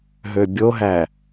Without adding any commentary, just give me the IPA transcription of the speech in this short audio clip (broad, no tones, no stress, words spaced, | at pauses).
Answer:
ɦøbʲoɦæ